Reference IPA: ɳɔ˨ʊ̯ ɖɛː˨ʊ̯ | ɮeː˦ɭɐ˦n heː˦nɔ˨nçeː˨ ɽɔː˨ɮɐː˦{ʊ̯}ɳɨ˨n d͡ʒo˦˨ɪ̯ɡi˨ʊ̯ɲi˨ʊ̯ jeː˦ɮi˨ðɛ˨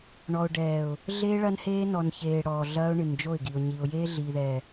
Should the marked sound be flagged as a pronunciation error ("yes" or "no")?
no